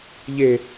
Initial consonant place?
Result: palatal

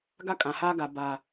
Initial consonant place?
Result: velar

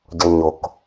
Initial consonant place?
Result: palatal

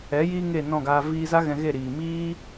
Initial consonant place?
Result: palatal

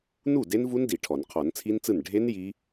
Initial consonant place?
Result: alveolar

